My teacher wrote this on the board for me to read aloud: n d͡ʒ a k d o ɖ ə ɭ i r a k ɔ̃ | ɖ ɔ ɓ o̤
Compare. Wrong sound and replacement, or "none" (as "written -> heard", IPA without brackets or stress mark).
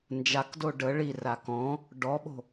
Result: none